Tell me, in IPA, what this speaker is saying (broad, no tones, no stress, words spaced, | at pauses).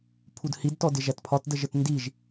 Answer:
pʰudhid tɔdɪʒætpʰɒt dəʒətndiʒ